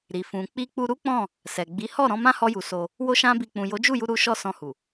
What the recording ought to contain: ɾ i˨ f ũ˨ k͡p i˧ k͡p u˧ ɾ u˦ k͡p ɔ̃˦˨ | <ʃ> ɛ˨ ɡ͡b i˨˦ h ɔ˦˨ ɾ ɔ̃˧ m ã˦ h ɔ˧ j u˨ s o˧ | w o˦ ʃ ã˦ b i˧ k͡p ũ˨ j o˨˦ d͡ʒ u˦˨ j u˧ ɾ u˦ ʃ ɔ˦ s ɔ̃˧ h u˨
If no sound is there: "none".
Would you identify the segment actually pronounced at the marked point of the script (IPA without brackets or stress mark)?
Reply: s